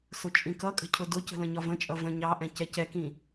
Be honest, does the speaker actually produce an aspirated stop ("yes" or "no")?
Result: yes